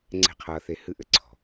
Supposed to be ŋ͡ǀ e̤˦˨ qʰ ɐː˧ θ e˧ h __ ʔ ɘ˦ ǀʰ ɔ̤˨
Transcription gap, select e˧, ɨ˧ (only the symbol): ɨ˧